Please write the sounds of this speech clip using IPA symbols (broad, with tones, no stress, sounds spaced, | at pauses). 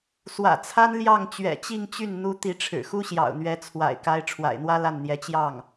s w ä̰˨˩ t͡sʰ a˥ n l j ɑ˥˩ ŋ t͡ɕ ɥ ɛ̰˨˩ t͡ɕ i˥˧ ŋ t͡ɕ y˥˩ n n̪ u˥ t̪ i˧˥ ʈ͡ʂʰ ɻ̩˨˩ x u˥ ɕ j ɑ̰˨˩ ʊ̯ n̪ ɥ ɛ˧˥ t͡sʰ w a̰˨˩ ɪ̯ k a˥ ɪ̯ ʈ͡ʂʰ w a̰˨˩ ɪ̯ n̪ w ä˥ l a˥˩ n n̪ j ɛ˧˥ t͡ɕ j ɑ˥˩ ŋ